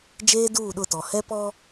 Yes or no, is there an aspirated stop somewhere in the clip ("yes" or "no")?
no